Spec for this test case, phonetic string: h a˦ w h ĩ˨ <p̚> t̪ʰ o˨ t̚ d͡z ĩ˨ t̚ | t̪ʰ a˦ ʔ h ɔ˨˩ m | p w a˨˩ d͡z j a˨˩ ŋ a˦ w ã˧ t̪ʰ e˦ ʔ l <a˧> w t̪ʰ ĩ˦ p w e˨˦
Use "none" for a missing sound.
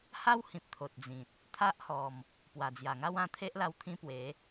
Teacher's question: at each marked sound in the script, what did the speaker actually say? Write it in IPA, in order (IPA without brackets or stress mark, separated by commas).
p̚, a˧